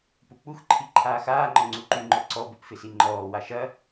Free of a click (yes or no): no